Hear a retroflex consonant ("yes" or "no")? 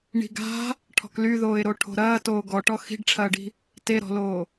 yes